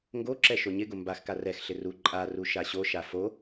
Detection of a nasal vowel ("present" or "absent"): absent